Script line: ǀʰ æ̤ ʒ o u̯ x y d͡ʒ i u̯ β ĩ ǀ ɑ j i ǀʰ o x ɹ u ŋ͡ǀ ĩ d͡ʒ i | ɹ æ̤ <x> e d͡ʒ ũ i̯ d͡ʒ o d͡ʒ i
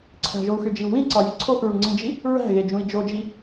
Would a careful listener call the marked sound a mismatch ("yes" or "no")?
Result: yes